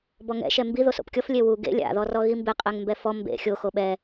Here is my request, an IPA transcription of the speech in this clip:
b ɔ ŋ ɛ̰ ʃ ɛ m b i ð o s o̰ p kʲ ɔ f lʲ e w u ɡ ḛ lʲ a̰ ð ɔ r ɔ ɣ i m b e qʼ ɛ ŋ m b ɛ f ɔ m b ḛ xʲ o x o ɓ ɛ

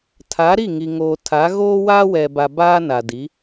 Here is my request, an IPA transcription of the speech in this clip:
tʰ a˨˦ ɾ i˦˨ ŋ i˨ ŋ oː˨ tʰ a˨˦ ɣ oː˦ w aː˦ w ɛ˨ b a˨ b aː˦ n a˨ d i˨˦

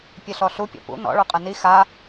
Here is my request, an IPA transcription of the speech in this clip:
pʲ ɘ ɬ ɔ ɬ u pʲ ɔ̰ p ṵ n ɔ̰ ɭ u qʼ ɘ n i x a

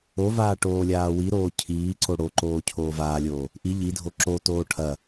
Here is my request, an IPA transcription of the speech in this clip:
o v aː ʈ oː lʲ aː w i ɾ oː cʰ iː ǀ o ɽ o ǃ oː cʰ oː v aː lʲ oː | ʔ i ʎ i dʱ o ǁ o t oː ʈʰ ɐ

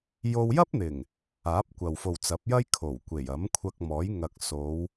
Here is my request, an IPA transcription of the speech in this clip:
j o˥ w j ɐ˥ p̚ n̪ ɪ˨˩ ŋ | aː˨˥ p̚ kʷ ɐ˨ w f o˨ w t͡s ɐ˨˥ p̚ j ɐ˥ j kʰ o˨˩ w kʷ e˨˩ j ɐ˨˥ m kʷʰ ɐ˧ k̚ m ɔː˨˥ j ŋ ɐ˨ k̚ s o˨˧ w

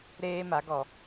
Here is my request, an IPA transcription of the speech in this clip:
ɾ eː˦ m a˨˦ ɡ ɔ˨

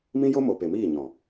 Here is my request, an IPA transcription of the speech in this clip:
m ĩ˦ j o˦ m o˨ p e˨ m iː˦˨ ɲ ɔ̃˨

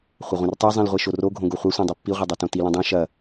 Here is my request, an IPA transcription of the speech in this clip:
χʷ ɐ ʁʷ ĩ r tˤ e zˤ ĩ l ʁʷ e ʃ o r o ɡʱ õ ɡ o χʷ ɐ sʷ ẽ dˤ e pː i ʁʷ e dˤ o t õ t i l ĩ dˤ õ ʃ ɐ

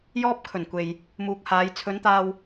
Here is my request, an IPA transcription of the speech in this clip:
j ɔː˧ p̚ kʰ ɵ˨˩ n kʷ e˨ j | m uː˨ k̚ h aː˨˧ j t͡sʰ ɵ˨˧ n t̪ aː˧ w

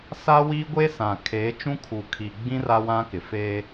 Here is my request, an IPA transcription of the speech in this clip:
s a˦ w iː˦ ɡʷ e˦ s ã˨ kʰ eː˨˦ t͡ʃ ũ˦ kʰ u˨ kʰ i˨ ɡ͡b ĩ˦ r a˦ w ã˦ k ɪ˨ f e˦

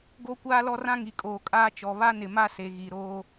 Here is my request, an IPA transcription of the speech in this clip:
ɡ o˦ kʷ aː˦ l ɔ˦ r ã˦ ŋ i˨ kʼ oː˨ kʼ aː˦ t͡ʃ ɔ˨ β a˦ n ɪ˨ m a˦ s e˨ ɣ i˨ ɾ oː˦

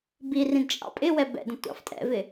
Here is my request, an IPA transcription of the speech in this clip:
b i r ĩ d t͡ʃʼ ɑ̰ pʼ ɪ w ɛ b ɛ̰ d ə̃ tʷ ɑ̰ f tʼ ɛ̰ v ɪ

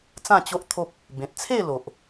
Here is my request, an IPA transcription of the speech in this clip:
t͡s ã˥˧ t͡ɕ o˦ ʔ t̪ʰ o˦ p̚ | b ẽ˨ t̚ t͡sʰ e˥˧ l o˨ ʔ

